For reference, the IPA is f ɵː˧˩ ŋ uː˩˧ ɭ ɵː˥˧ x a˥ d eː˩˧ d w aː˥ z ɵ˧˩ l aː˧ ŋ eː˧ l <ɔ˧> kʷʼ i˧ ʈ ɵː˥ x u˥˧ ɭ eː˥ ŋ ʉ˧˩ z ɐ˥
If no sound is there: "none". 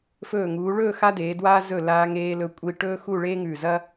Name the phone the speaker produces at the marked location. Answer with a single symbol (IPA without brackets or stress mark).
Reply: ɵ˧